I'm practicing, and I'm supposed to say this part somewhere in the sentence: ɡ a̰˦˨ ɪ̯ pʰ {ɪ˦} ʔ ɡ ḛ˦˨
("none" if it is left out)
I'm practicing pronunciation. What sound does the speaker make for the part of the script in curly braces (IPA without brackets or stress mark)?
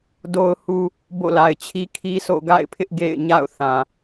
ɪ˦